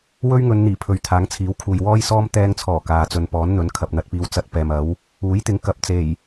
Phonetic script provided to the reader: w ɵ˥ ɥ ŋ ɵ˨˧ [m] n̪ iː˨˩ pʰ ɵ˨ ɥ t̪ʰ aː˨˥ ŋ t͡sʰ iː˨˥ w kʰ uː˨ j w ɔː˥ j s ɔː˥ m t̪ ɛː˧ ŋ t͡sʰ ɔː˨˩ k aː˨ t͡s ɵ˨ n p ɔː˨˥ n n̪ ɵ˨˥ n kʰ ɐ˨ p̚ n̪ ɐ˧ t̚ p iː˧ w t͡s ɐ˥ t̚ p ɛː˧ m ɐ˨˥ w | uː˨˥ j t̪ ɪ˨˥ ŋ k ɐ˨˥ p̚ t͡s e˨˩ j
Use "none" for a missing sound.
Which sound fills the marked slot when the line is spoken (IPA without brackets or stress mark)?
n